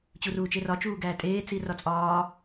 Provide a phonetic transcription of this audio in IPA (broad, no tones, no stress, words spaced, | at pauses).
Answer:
t͡ɕuruːt͡ʃerɒ t͡ʃuːɡæːtʼeː t͡sirɒt͡sʼɒː